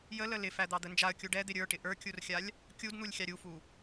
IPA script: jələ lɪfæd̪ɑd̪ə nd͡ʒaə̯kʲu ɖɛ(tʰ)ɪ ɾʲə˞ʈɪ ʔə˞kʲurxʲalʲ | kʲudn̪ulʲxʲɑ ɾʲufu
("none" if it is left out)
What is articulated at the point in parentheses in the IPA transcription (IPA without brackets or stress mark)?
d̪